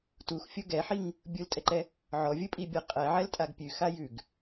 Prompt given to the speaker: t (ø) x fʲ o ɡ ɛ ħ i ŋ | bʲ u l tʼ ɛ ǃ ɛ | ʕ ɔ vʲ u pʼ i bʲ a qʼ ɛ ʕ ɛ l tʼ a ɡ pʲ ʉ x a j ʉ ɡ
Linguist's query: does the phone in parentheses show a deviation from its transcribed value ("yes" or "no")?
yes